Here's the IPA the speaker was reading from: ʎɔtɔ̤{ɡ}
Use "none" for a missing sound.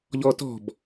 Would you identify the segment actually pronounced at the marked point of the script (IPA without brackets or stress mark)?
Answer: b